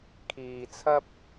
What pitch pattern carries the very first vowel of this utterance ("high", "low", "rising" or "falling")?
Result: low